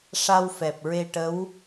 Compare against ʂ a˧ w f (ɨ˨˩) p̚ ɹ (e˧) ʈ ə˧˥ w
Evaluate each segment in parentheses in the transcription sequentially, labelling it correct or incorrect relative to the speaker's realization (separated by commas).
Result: incorrect, correct